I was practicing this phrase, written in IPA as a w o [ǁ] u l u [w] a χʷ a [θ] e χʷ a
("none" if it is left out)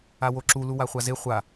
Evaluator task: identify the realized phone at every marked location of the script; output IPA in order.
ǁ, w, z

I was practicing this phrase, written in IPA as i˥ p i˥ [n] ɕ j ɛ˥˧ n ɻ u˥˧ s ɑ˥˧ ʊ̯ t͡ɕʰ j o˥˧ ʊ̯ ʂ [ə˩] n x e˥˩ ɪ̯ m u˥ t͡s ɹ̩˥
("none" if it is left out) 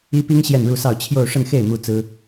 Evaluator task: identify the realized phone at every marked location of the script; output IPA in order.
ŋ, ə˥˧

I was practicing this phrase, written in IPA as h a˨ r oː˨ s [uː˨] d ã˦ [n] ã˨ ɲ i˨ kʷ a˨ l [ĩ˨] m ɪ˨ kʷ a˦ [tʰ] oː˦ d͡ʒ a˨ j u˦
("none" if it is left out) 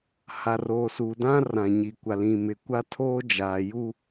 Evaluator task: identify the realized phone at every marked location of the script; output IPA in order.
uː˨, r, ĩ˨, tʰ

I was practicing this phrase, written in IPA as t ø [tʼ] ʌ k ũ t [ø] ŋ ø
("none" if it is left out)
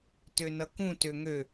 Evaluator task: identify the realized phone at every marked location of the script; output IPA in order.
n, ø

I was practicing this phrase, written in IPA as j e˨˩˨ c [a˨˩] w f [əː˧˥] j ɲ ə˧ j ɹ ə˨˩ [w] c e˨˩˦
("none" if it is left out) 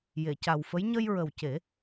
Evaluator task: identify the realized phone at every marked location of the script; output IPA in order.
a˨˩, ə˧˥, w

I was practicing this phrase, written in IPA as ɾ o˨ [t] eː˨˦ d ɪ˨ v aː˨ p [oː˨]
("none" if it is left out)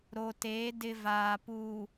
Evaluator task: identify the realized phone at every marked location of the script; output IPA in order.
t, uː˨

